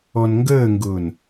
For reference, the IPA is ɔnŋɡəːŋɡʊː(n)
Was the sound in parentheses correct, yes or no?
yes